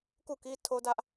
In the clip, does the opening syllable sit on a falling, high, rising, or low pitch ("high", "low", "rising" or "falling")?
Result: falling